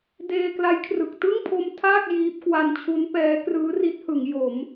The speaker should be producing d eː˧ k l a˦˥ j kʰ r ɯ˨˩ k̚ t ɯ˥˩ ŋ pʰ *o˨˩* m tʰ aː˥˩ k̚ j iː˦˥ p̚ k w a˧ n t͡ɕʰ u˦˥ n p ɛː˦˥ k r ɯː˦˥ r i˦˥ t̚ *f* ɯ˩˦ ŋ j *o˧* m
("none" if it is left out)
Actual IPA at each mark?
o˧, h, o˩˦

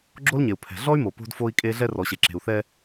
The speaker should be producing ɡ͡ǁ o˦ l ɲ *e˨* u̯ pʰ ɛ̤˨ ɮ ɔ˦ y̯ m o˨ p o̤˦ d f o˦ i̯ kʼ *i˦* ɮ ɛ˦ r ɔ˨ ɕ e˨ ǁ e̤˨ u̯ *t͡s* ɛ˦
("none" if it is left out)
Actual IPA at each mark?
e˨, e˦, θ

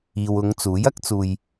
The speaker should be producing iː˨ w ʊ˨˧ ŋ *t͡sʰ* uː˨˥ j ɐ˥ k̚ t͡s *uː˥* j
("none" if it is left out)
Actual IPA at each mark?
t͡s, uː˧

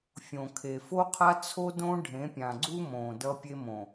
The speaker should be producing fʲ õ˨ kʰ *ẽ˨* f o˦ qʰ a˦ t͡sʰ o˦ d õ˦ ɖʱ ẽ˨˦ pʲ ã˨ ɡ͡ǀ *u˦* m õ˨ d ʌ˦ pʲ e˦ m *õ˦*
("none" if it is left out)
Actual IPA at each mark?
e˨, u˦, õ˨

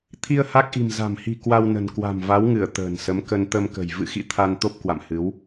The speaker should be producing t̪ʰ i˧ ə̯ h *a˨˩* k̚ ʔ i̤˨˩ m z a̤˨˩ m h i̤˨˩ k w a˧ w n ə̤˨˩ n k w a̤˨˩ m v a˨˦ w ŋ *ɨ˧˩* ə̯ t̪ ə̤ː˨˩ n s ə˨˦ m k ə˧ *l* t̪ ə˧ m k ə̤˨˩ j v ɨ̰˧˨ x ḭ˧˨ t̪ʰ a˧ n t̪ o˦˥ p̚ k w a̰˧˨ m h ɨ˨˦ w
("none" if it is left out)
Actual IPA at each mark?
a˦˥, ɨ˧˩, n

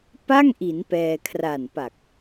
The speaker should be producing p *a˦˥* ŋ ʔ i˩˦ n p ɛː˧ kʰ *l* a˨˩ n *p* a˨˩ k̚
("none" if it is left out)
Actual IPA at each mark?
a˥˩, r, p

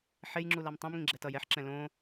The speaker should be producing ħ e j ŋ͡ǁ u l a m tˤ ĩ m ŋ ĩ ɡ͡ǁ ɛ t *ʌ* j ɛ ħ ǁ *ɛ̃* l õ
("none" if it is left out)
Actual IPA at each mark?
ʌ, ɛ̃

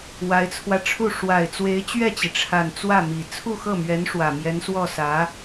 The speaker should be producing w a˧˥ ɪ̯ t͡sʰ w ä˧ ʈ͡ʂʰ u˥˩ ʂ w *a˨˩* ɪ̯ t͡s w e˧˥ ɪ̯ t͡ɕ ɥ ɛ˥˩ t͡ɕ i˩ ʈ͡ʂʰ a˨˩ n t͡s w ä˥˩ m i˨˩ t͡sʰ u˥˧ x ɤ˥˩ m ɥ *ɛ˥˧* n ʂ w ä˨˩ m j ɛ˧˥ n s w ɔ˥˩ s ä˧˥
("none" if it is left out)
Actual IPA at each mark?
a˨˩, ɛ˧˥

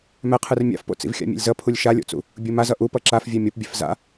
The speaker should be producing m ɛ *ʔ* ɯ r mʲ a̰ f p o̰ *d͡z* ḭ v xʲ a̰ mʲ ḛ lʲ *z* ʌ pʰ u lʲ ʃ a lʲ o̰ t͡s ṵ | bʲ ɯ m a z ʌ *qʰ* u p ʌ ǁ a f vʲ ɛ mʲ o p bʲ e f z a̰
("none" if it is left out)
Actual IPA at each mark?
qʰ, t͡s, z, ʔ

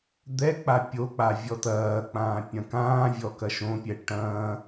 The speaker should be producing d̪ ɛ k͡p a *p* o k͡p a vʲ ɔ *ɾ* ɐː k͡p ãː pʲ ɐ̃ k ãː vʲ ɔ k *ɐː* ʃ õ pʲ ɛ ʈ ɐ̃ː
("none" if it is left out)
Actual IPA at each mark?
pʲ, t, ɐ

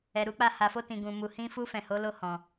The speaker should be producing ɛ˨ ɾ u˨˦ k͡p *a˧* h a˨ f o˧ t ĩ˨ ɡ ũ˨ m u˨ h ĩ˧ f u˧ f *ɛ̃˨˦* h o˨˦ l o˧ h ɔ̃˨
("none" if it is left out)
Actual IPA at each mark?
a˧, ɛ̃˨

